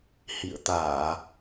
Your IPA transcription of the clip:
hḭ˧˨ə̯t̪aː˧˩˨

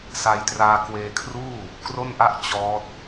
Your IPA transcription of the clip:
sa˧jtraː˧ kweː˧kʰruː˥˩ | kro˥˩nʔa˥˩ʔ t͡ɕɔː˦˥t̚

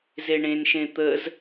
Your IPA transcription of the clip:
zeɳẽn ʃẽt̪əz

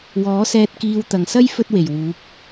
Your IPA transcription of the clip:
wɔː˨˥sɛː˧t̚ kiː˧wt̪ɐ˨ŋsɐ˥j fɵ˥t̚we˨˩jwuː˨˥p̚

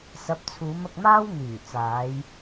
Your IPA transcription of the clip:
sɐ˨˥p̚t͡sʰuː˨˧m ɐ˧k̚maː˥w n̪yː˨˩t͡saː˨˧j

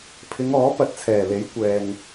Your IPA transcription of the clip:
pʰɪ˨˧ŋɔː˨˥ pɐ˨t̚t͡sʰɛː˨˩le˨˥j kʷɛː˨ŋ

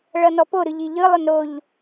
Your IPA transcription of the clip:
ɭʌnɔpo ɾɯʎiʎɯ lˠɵnɾoʎ

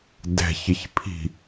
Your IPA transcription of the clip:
dɛ̤çɪçpʰi̤

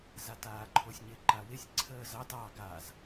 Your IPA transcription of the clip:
zataːǃʰosʲɲɪ ǃawɪsʲ ǀʰəːzɑt ɑ ɡaz

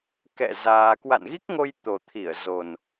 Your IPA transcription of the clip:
kɛ̰˧˨ zaː˧ kwa̰˧˨nɣi˦˥k̚ŋo˧j t̪o˨˩t̪ʰi˧˩ə̯ zo˨˩n

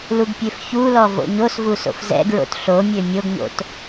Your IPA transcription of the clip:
luɡpʲøfçulɔ vo̰ɲosvu so̰fzɛ̰ɡɹo̰t ɬomʲø mʲoɡɲo̰t

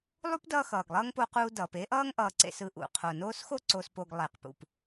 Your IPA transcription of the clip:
lˠu˥pdʌː˦ xʌː˩ɡlˠʌː˥ŋpo˦quː˦ dʌː˩pe˥ʔʌː˥ŋ ʔʌː˨ǀḛ˨s ɯ˨ʔṵ˩ qʰo˩noː˦sxo˥ ǀo˨spo˨ɡ lˠɛ˩qpṵ˩p

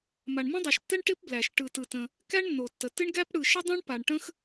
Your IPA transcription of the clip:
ma˩ɳmə̃˥dˤɛ˩ʃtːɛ˥ɳ ʈɪ˥pblæ˩ʃ ʈɯ˩tɯ˩tə̃˩ | kæ˥ɳnːo˩tːə˩ tɪ˥ɳɡæ˥p ɽɯ˩ʃɪ˥dˤæ̃˥ɳ pa˩ɳʈə̃˥x

